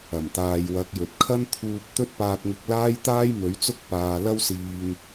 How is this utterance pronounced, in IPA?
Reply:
ɐ˨˩ m t̪ aː˨ j w ɐ˨˥ k̚ j ɵ˨ t̚ kʰ ɐ˥ n t̪ʰ uː˧ p̚ t̪ ɵ˥ t̚ p aː˧ t̚ ŋ ɪ˧ k̚ l aː˥ j t̪ aː˥ j m ɵ˨˥ ɥ t͡s ʊ˥ k̚ p aː˧ l ɐ˥ w s iː˧ ŋ

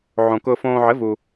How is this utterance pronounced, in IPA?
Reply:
ʕ õ˧ k ʊː˧ f õː˧ ʕ ɘ˧˥ v u˧

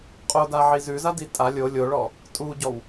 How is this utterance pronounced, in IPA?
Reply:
qʼ o d a ʕ i z ʉ z a d i tʼ a lʲ o lʲ o ɭ ɔ | tʼ u ɟ ɔ w

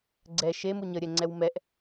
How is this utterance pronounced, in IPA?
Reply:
ɡ͡ǀ ɛ ʃ e m u ɲ ə ɾʲ ɛ ŋ͡ǀ ɛ w m ɛ ʔ

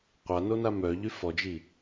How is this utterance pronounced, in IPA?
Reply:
qʷ a n o n a m œ ʎ y f ɔ d͡ʒ i

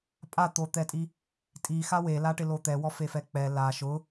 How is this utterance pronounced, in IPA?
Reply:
pʼ a t̪ o t̪ ɛ tʼ i | tʼ i x a w e l a ʈ ɪ l o t̪ ɛ w ɔ f e f ɛ k͡p ɛ l a ʃ ʊ

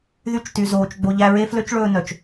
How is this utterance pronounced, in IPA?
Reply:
ð y˧ t͡ʃ t y˨ z oː˨ t͡ʃ ɡ͡b o˨ ʎ æ˧ ɹ e˦ f l ø˦ t͡ʃ ɭ ɵː˧ n œ˨ t͡ʃ

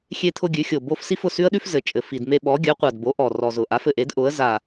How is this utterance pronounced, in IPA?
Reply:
xʲ e˥ t̪ʰ ʊ˥ ɡʲ ʉ˩˥ xʲ o˨˩ b o˥ f s i˥ f ʊ˨˩ s ʉ˥ ə̯ ɗ ʉ˥ f z ɘ˨˩ t͡ʃʼ ɘ˨˩ f i˨˩ d m e˥ ɓ ɔ˩˥ ɡʲ œ˩˥ qʷ a˨˩ d b o˩˥ ʔ ɔ˨˩ r ɔ˨˩ z ʊ˨˩ ʔ a˩˥ f ɘ˨˩ ʔ e˩˥ d ʔ ʊ˩˥ ə̯ z a˨˩

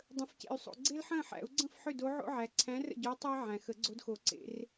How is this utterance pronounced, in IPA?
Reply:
dˤ ə̃˨ f c ḛ˨ y̯ sˤ o̰˨ ɡ͡ǀ e˥ l ħ ə̃ː˥˨ ħ æ̰˨˩˦ u̯ ɡ͡ǀ ə̃˥˨ f ħ ʏ˥˨ d o˧˥ ʕ o̰˥ ʕ æ˨ ǀʰ æ̃˧˥ r ə̰˥˨ ɟ oː˧˥ tˤ ə˥ i̯ ʕ æ̃˨ x ə˨˩˦ ɡ͡ǀ o˧˥ d x o˨˩˦ ǀ ḛ˨˩˦ r

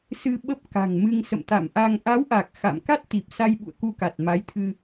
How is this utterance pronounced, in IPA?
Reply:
s ɨ˧ ɓ ə˦˥ p̚ k a̤˨˩ ŋ m ɨ˧ ŋ s ə̰˧˨ m t̪ a̰˧˨ m ʔ a˧ ŋ ʔ a˨˦ w ʔ a˨˩ k̚ x a̰˧˨ m k a˦˥ t̚ t̪ i˨˩ p̚ s a˧ j ɓ ṵ˧˨ ə̯ k u˧ k a˨˩ t̚ m a˨˦ j t̪ʰ ɨ˧

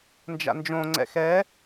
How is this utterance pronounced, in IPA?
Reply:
n d͡ʒ a̰ n d͡ʒ õ ŋ͡ǀ ɛ̰ x ɛ

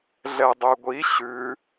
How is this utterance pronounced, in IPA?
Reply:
ɮ ɛ dˤ ø ɡʷ i ɕ ʉ

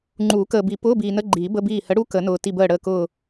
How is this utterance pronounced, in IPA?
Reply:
ŋ͡ǃ uː˨˩˦ k əː˨ b i˨˩˦ p ʊː˧˥˧ b iː˨ n ə˧˥˧ ɡ͡ǃ iː˨˩˦ b ə˧˥˧ b iː˦˨ h ə˨˥ ɽ u˧˥˧ k ə˨˩˦ n ʊː˨ t i˦˨ b əː˦˨ ɽ əː˦˨ k ʊː˦˨

